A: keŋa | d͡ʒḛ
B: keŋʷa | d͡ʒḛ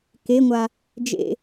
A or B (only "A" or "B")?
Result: B